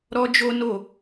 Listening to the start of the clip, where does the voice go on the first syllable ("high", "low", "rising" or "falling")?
high